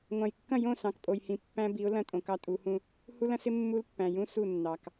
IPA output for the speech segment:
ŋʷɑ̃˨jkːɐ̃˦˨jõ˦˨sɑ̃˨k pʼo˨jhĩ˨ pːæ̃˦bi˨˦ʊ̯lɐ̃˦ tʼõ˨kɑ˦tʼu˨˦hũ˦ | hu˦lɐ̃˦sɪ˦ mːu˦lpːæ̃˨ jũ˦ su˦˨nːɑ˨k

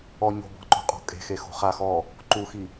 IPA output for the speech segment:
ɔ ɲo̤bɔ̤ǃo̤qʼɔ̤ kʼe̤xexo̤ χa xɔ | ǃuxi

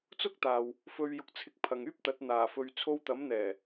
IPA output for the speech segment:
t͡sʊ˥k̚t̪aː˨w | fɵ˧ɥjʊ˧k̚t͡sʰɪ˧k̚ pʰɐ˨ŋyː˥p̚t̪ɐ˨˥t̚ n̪aː˨˩fɵ˨ɥ t͡sʰo˧wt̪ɐ˨˥mn̪ɛː˨˩

